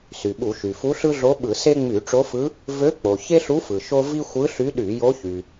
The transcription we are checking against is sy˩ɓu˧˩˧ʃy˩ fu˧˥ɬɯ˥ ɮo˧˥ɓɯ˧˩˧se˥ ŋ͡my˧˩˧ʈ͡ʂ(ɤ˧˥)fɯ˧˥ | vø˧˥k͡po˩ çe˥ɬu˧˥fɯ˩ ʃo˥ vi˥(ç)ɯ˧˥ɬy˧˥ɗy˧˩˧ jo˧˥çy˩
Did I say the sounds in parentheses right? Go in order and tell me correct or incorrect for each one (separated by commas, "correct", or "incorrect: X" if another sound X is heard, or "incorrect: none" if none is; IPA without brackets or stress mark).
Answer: incorrect: o˧˥, incorrect: xʷ